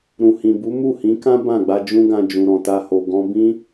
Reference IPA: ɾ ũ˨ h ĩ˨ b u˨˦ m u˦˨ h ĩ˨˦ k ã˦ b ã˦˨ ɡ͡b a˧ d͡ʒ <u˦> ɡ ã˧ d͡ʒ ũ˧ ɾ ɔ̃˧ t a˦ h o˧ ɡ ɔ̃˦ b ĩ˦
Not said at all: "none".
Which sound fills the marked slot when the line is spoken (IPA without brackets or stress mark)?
ũ˦